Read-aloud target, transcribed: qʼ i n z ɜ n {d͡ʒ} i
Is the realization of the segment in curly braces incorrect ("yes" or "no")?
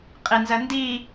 yes